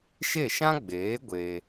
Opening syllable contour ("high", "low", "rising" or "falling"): falling